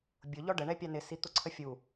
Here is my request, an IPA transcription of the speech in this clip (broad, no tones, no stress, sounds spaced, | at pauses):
bʲ ʊ ʎ ɔ ɖ ə ɳ ɛ pʲ ɑ n ɪ s i t̪ ʊ ǀʰ ə fʲ u